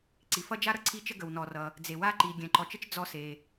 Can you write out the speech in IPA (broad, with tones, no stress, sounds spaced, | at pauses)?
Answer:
ǀ i˩ f ʌ˥ d͡ʒ a˥ ɾ ʌ˩ ǀʰ i˥ t͡ʃ ə˥ ɡ ə˩ w n ɔ˩ r ʌ˩ | d͡z e˩ w a˥ ǃ i˩ ɡʲ ɛ̃˩ ǃ ɔ˩ t͡ʃ ə˥ t͡ʃ d͡z ɔ˥ s e˩